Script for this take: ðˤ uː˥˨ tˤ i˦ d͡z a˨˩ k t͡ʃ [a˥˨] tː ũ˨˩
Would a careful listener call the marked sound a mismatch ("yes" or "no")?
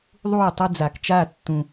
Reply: no